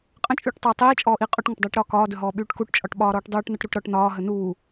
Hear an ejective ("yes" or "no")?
yes